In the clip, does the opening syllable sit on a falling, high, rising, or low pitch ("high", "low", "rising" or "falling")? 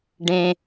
high